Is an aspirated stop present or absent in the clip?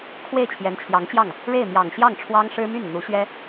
present